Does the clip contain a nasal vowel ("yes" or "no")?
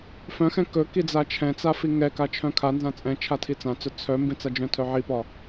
yes